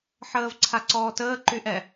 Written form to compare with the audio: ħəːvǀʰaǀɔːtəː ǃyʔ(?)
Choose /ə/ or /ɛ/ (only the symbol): ɛ